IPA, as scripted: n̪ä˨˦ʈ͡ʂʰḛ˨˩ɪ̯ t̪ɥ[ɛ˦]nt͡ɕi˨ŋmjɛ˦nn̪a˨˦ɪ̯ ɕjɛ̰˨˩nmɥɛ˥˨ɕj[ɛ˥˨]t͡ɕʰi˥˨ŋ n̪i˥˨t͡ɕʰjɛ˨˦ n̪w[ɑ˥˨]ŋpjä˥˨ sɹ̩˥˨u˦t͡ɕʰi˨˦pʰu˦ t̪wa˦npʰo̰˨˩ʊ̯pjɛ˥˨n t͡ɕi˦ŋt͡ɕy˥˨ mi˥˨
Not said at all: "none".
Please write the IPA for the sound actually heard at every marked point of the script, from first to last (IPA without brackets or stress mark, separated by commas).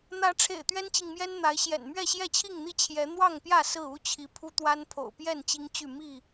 ɛ˦, ɛ˥˨, ɑ˥˨